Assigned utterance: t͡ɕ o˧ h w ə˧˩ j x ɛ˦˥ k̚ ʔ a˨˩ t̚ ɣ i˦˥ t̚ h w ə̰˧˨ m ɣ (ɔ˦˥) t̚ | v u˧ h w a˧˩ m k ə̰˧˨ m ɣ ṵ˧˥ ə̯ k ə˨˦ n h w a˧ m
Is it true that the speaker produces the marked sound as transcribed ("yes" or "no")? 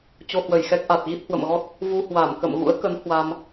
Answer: yes